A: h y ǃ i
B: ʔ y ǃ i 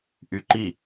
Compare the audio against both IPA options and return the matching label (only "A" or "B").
B